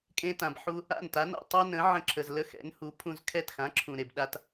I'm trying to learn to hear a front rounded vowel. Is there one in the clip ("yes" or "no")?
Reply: no